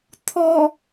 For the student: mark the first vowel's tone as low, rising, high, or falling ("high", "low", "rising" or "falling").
low